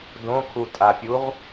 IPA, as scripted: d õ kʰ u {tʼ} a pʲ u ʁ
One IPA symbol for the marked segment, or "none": tʼ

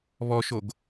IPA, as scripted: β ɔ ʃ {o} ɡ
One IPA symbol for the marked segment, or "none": o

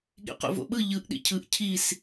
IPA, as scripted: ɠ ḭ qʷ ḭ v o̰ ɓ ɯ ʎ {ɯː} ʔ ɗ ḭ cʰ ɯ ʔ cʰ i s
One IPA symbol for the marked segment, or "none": ɯ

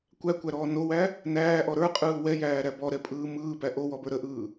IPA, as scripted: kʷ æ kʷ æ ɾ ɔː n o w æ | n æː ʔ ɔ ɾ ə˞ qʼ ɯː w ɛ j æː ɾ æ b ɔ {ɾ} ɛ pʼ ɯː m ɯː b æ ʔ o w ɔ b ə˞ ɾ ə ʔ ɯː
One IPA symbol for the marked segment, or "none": ɾ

